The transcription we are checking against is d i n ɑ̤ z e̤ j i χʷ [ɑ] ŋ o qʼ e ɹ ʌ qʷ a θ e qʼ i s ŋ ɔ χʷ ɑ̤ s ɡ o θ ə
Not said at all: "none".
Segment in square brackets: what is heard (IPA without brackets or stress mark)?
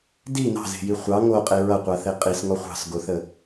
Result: ɑ